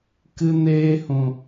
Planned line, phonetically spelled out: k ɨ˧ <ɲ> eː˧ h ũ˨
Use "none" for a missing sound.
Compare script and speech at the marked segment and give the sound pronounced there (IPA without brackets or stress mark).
n